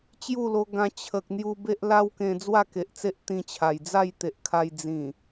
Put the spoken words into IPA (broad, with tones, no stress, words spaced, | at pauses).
t͡ɕju˥˧lo˧ɡã˧ t͡ɕʰə˨k̚n̪ju˧ be˦ʔla˦wkẽ˧ d͡zwa˥˧ke˨ʔt͡se˦ʔ t̪ĩ˧t͡ɕʰa˨˩j d͡za˥˧jt̪e˨ʔkʰa˧j d͡zĩ˨˩